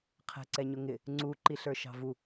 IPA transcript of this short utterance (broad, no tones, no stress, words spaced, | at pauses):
qʰɛ̤ǀɛɲʊŋɪ | ŋ͡ǀu ǃiɬə˞ʃɑ̤vu